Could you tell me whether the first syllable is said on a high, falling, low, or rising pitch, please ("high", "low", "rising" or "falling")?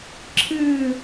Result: falling